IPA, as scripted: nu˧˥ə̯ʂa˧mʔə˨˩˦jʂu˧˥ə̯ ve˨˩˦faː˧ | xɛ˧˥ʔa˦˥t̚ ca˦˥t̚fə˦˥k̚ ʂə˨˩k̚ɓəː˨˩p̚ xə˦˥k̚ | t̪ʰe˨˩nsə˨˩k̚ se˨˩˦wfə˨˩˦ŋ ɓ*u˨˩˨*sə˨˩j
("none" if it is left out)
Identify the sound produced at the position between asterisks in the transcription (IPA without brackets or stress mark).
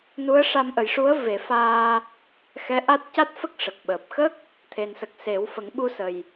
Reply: u˧